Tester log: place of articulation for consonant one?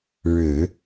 retroflex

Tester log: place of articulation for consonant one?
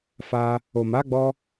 labial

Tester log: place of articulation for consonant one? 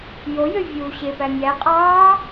palatal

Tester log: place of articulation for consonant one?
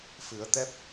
labial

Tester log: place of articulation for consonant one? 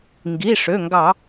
velar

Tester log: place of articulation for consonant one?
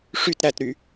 retroflex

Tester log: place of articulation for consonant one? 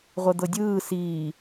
uvular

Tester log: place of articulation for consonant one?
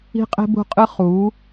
uvular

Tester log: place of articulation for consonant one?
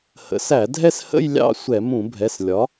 glottal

